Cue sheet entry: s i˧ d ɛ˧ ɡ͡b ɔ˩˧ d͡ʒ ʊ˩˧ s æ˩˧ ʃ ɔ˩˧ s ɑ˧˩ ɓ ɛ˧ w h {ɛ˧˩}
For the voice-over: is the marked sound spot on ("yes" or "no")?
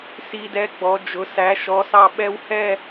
no